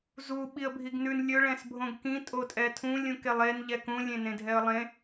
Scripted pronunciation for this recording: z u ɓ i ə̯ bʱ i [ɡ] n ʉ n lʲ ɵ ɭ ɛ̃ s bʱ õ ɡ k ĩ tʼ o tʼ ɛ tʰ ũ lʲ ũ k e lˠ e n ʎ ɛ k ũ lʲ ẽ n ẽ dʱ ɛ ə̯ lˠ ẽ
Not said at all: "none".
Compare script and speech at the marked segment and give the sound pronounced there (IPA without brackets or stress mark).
ɡ